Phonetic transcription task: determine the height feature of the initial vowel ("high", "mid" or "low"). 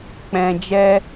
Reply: mid